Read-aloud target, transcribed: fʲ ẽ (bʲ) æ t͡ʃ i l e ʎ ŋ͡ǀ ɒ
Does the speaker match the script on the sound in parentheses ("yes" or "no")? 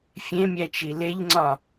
no